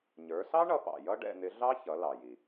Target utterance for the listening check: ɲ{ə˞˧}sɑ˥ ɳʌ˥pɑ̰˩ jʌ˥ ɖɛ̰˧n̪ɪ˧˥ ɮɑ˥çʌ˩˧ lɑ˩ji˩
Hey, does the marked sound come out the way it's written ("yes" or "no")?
no